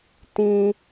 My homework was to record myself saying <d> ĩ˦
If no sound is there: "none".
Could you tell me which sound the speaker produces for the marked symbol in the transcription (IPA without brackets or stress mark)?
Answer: t